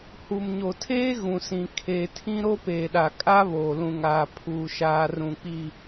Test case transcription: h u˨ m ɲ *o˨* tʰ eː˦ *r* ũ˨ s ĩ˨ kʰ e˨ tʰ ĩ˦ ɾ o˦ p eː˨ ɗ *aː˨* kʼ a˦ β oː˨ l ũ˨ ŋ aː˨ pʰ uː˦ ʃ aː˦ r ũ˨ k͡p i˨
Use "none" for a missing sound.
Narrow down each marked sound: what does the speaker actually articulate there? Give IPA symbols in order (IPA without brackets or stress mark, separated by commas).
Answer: o˨, ɣ, a˨